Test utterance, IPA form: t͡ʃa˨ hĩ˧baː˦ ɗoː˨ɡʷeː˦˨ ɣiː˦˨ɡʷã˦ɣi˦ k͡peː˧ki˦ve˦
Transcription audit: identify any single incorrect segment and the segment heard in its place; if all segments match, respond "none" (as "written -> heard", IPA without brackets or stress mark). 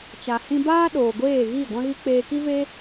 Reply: none